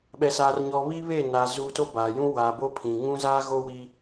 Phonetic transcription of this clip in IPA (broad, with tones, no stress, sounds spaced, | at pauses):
ɓ ɛ˨ s aː˨ r ɲ ɔ˨ β i˦ β e˦˨ n a˨ z uː˨ t o˦ b aː˨ j ũ˦ w a˨ b o˦ pʰ ĩ˨ ŋ ũ˦ z aː˦ ɣ o˦ w i˦